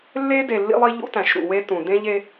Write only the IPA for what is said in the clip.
lː e˦ d e˨ lː ḭ˦ lˠ i˦ ʎ ṵ˦ t æ̃˨ ʃ ɾ ṵ˨ w e˦ t ũ˨ d ẽ˦ ʎ e˦

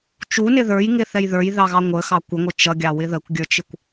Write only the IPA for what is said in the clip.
t͡ʃ u n ɪ ð ə˞ j ŋ ɪ θ ɛ j ð ə˞ j ð ɑ ɣ ɑ ŋʷ ə x ɑ kʷ ə ŋʷ ɪ t͡ʃ ʌ ɡʲ ɑ w ɪ ð ə kʷ ɡʲ ə˞ t͡ʃ ɪ kʷ

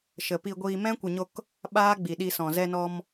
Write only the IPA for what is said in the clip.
ʃ ə˨ p i˧ ɡʷ iː˧ m ɛ̃˦ kʷ ɨ˨ ɲ o˧ k | ɓ aː˦ ɡ͡b i˨ ɗ i˧ s ɔ̃˨ z ɛ˧ n ɔ˧ m

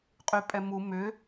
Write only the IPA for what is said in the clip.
qʼ y pʼ ɛ m u m ʏ

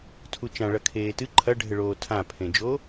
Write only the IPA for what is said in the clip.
tʰ u t͡ʃ ã ɭ ɐ kʰ eː t ɨ ǃʰ ɐ ɖʱ ɘ ɭ oː tʰ ã pʰ ẽ d͡ʒ o

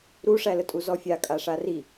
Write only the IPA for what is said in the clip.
ɾ u ʂ æ l ə tʼ u z ɔ fʲ a kʼ a ʂ a r i

